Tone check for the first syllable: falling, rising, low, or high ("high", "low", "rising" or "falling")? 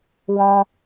high